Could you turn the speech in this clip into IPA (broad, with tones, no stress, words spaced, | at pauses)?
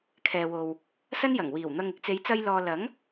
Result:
kʰɛː˨wo˨w | sɐ˥njɐ˨˩ŋwiː˨˩wn̪ɐ˧ŋ ɪ˧k̚t͡se˨˧jt͡sɐ˧j lɔː˧ lɐ˨˥ŋ